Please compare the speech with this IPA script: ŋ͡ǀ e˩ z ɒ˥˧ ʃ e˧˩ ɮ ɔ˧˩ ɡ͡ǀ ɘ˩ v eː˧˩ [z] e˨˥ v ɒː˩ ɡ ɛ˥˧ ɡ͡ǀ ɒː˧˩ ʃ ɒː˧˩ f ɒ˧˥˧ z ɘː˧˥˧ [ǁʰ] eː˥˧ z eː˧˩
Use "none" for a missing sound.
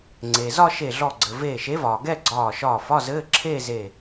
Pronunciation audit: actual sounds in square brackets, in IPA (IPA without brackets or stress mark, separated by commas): ʃ, ǁʰ